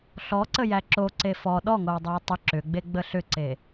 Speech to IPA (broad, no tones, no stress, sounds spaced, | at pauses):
ɬ ɔ ǀ ə j æ ǁ o ǀ e f ɔ ɗ ɔ ŋ o w dˤ æ e̯ tˤ ʏ ǁ ʏ ɡ͡b e ɡ͡b ə ɬ ʏ ǀ e